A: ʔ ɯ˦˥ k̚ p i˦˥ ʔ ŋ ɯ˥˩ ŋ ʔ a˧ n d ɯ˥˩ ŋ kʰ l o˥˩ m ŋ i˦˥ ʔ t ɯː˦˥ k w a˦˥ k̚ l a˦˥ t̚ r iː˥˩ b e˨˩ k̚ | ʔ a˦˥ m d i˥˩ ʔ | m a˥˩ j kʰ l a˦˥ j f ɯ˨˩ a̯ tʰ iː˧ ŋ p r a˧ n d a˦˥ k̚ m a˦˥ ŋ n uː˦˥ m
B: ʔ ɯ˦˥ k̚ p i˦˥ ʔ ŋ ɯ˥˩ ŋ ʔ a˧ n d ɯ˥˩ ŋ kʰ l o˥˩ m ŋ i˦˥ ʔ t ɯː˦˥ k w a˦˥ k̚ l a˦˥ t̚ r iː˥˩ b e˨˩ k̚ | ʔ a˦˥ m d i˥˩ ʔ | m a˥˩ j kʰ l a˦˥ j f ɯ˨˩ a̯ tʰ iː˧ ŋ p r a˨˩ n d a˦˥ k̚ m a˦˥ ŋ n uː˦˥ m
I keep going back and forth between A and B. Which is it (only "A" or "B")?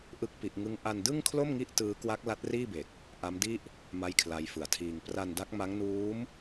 A